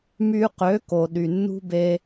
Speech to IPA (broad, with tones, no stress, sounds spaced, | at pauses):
m y˧ q ø˨˦ k o˧ ɗ y˧ nː ṳ˦ b e˦